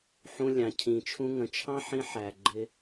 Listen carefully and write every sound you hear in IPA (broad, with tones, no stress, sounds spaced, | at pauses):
ħ ũ˧ lʲ ɑ̃˨ cʰ ĩ˨ t͡ʃʰ ũ˧ ŋ ə̃˨ t͡ʃʰ ɑ̃˦ ħ ĩ˧ ħ æ˨ ɡ͡ǃ ɪ˧